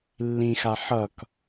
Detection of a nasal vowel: present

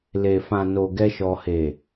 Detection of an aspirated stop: absent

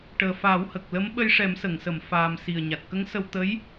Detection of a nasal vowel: absent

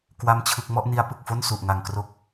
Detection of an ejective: absent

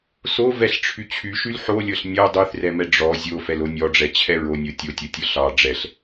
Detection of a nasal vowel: absent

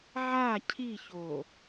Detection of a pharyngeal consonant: present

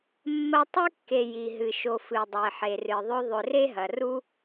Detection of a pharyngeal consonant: present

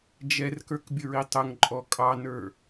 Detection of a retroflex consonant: absent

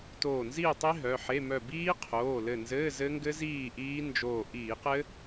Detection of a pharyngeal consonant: present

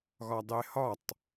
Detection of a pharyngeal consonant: absent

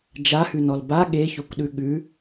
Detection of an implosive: present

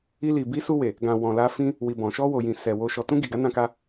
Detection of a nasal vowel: present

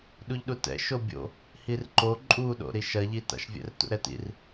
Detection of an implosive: present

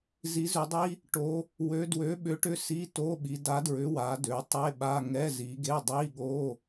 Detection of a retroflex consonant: present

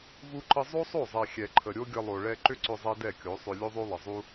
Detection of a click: present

